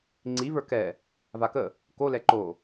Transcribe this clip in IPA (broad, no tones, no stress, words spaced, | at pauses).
ŋ͡ǀivə˞ kɛ | vakə | kolɛ ǃo